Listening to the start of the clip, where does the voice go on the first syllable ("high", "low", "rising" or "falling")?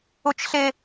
high